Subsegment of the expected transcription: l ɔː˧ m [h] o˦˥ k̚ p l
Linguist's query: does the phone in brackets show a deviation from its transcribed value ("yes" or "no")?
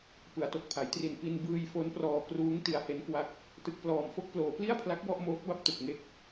yes